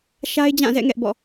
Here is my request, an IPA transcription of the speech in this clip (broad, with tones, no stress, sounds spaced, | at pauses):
ʃ a˦ ɪ̯ d͡ʑ ã˦˨ z ɛ̰˦˨ ŋ ɛ˦ ʔ b ɔ̰˦˨